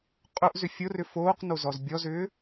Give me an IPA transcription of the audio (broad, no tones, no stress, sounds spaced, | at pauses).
qʼ ʊ ʔ z ʏ fʲ ʊ r ʏ f oː q n o z ɔ z bʲ ɔ z ʏː